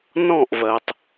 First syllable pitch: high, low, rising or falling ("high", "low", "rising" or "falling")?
falling